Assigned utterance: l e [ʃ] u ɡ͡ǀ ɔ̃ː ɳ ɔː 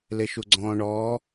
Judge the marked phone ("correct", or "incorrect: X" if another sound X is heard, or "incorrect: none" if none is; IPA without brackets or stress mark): correct